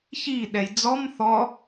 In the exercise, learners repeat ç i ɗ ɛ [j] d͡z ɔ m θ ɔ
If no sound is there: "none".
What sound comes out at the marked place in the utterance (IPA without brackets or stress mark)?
j